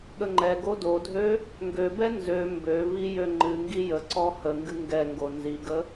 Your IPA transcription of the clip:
ɠəŋ͡ǃɛɡo dodʱø | ŋɡøbɛ nzø mbøvi jøŋ͡ǃɨŋɡi jəǀɔ həŋɡɨ ŋɡɛŋɡo nziɡə

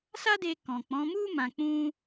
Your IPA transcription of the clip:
sa˦de˧ kɔ̃˨k͡pɔ̃˨˦mu˦ mã˧k͡pũ˦

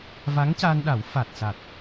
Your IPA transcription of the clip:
va˧˥ŋca˧nɗa˨˩˦wfa˨˩t̚ sa˨˩t̚

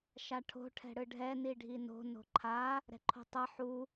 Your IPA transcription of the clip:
ʃaʈʰo̤ ʈʰɛ̤ɽɯɖʱɛ niɖʱino̤ no̤ǃʰa | ɾɛ̤ǃʰo̤tˤʌ ħu

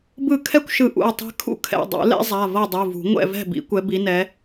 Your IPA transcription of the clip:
bɯ˥˨ kʰɛ˥kʷʃɯ˨˦ ʔṵ˩˧˩ɐ̯tˤɛ̤˥ kʰṵ˥kʰɛ̰˩˧˩ dˤṵ˨˩˦lɛ̰˥zˤa˩˧˩ vɤ˥˨dˤu˩˧˩vṳ˨˩˦ ŋʷɛ̰˥˨vɛ̤˥˨bḭ˨˩˦ kʷɛ˨˦bi˨˦nɛ˨˦

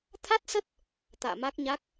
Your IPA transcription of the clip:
t̪ʰa˦˥t̚sə˦˥t̚ | t̪a̰ː˧˨ma˦˥k̚ɲa˦˥k̚

